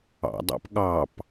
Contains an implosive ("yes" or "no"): yes